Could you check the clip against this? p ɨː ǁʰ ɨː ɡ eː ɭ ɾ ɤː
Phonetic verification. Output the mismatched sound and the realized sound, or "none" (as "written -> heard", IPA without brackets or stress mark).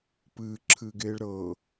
none